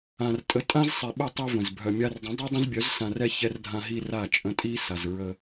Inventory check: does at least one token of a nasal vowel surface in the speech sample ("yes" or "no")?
yes